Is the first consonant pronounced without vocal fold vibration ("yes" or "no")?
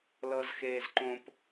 no